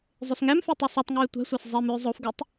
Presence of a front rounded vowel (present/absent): present